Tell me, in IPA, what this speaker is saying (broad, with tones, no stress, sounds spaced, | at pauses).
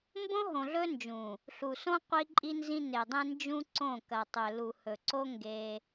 m b õ˦ ɦ õ˨ ɮ ɵ˦ n d͡ʒ ũ˨ | ɬ u˨ s õ˦ qʷ i˦ ǃʼ i˦ n z ĩ˦ n e˨ dˤ ẽ˦ n d͡ʒ ũ˦ ǀ õ˦˨ k ɐ˨ tˤ ɵ˨ l u˨ h ɵ˨ ǀ o˦ ŋ ɡ e˦